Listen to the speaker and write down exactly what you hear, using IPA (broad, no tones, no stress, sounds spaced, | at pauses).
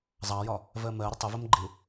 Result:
zˤ ɑ j ɒ | v ɜ m ɜ ɾ ə tˤ ɪ v ə m ɡ͡ǃ ɪ